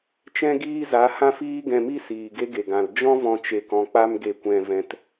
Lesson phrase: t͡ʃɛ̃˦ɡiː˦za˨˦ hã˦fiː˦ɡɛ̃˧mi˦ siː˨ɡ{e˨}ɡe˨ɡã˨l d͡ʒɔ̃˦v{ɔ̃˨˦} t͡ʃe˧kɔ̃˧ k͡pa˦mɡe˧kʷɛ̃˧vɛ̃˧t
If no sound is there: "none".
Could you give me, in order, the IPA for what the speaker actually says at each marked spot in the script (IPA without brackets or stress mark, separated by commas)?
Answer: e˦, ɔ̃˧